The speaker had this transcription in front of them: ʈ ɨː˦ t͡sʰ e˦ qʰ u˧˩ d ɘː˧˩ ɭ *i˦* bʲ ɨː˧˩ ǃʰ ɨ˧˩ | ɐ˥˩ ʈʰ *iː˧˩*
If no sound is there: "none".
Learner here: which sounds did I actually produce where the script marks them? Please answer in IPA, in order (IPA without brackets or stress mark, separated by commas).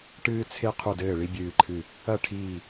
i˦, iː˧˩